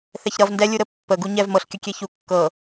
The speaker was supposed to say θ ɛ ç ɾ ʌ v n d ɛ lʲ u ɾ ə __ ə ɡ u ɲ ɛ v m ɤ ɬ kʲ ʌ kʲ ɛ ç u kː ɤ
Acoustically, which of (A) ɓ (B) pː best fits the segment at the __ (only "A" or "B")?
B